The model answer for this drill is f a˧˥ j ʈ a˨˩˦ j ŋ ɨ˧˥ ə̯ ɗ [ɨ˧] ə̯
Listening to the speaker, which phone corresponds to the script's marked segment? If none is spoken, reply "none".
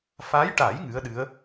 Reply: ɨ˧˥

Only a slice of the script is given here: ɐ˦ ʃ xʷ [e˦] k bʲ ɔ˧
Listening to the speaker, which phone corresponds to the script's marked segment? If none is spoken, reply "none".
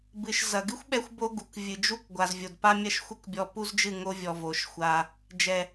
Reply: ɘ˦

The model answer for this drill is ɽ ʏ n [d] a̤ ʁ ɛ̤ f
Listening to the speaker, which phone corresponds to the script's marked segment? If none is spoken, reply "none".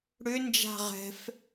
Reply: d͡ʒ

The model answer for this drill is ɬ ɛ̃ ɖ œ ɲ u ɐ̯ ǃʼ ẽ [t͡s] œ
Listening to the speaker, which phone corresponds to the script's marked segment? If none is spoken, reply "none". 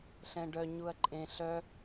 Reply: ɬ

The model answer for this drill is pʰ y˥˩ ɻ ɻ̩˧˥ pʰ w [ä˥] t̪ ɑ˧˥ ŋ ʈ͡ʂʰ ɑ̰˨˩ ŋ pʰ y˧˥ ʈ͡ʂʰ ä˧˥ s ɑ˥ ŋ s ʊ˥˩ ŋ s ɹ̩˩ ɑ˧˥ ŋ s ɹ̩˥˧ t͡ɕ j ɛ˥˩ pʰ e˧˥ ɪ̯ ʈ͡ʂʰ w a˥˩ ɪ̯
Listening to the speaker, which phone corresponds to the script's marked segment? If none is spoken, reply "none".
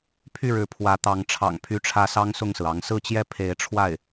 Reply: ä˧˥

